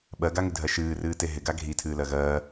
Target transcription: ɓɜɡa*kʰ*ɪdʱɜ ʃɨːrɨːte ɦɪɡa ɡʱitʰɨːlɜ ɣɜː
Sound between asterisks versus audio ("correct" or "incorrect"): incorrect